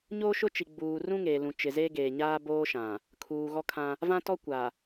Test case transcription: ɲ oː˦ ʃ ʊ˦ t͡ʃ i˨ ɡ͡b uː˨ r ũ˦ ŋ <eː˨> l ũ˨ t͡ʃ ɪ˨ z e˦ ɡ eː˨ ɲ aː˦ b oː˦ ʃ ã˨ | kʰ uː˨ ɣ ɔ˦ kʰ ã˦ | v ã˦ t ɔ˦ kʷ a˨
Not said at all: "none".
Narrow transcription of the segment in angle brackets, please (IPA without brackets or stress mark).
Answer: eː˨